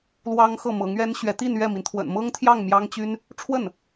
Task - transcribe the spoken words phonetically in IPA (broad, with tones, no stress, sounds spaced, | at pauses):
l w ɑ˥ ŋ x ɤ˥˩ m ɤ˧˥ ŋ ɥ ɛ˥ n ɕ ɥ ɛ˧˥ t̪ i˥˧ n ɥ ɛ˥˩ m i˩ n t̪ʰ w ə̰˨˩ n m ɤ˥ ŋ t̪ʰ j ɑ˥˩ ŋ m j ɑ˥ ŋ t͡ɕ y˥ n | ʈ͡ʂʰ w ə˥˩ n